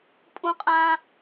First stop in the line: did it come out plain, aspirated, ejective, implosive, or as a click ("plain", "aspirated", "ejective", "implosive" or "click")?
ejective